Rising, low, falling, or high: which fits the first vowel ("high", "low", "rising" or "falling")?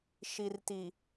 low